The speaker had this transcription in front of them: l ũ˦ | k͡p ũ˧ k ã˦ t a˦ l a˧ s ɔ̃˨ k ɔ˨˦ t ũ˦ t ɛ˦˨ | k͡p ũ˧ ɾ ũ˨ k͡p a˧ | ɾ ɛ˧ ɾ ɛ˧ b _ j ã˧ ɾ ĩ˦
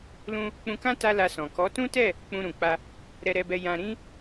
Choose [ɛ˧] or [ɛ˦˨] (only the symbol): ɛ˧